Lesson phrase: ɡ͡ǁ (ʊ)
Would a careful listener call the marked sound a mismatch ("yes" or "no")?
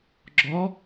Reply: yes